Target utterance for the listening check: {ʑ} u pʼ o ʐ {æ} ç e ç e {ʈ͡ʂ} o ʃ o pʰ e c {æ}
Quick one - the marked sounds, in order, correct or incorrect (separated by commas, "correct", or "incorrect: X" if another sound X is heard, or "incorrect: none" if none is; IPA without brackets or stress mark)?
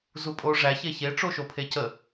incorrect: z, correct, correct, incorrect: ə